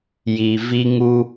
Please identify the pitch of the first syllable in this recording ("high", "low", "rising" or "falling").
low